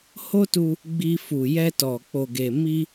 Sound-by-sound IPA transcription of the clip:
h o˦ t u˧ | ɡ͡b i˧ f u˨ j ɛ˧ t ɔ˨ k͡p o˨ ɡ e˨ m i˧

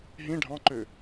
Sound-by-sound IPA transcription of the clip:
ɦ ĩ ɖʱ ɑ̃ ǃ ø

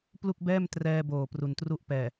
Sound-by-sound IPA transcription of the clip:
p l u˥˩ k̚ b ɛː˥˩ m t r ɛː˧ b oː˨˩ p r u˨˩ n t r u˦˥ ʔ p ɛː˨˩

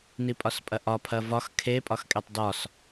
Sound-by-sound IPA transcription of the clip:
n i pʼ ɒ s pʼ ɐ ʔ ɒ pʰ ɐ v ɒ x kʰ e pʼ ɒ x kʼ e tˤ d ɒ s

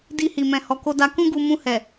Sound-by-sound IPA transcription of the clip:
d i˧ h i˨ m ɛ̃˨ h ɔ˨ k o˧ d a˧ k ũ˦ ɡ u˧ m ũ˧ h ɛ˨

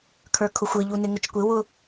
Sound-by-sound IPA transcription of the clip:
kʰ ə˞ kʰ ʊ xʷ ɪ ʎ u n ɪ ŋ ʊ t͡ʃ kʷ ɪ w ʊ

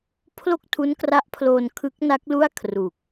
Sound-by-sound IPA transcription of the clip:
pʰ l o˥˩ k̚ tʰ u˦˥ n k r a˦˥ ʔ pʰ l oː˧ n kʰ ɯ˦˥ k̚ n a˦˥ k̚ l u˥˩ a̯ kʰ r u˨˩ k̚

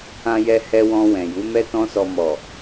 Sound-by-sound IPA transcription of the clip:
ã˧ j ɛ˧ h ɛ˧ w ɔ̃˧ w ɛ̃˨ j u˨˦ m ɛ˦ t ɔ̃˦ s ɔ˧ m ɔ˨

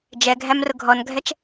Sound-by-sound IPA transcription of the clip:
d͡ʒ ɛ ɡʱ æ m r ʊ ɡʱ ɔ n ɡʱ ɛ t͡ʃ

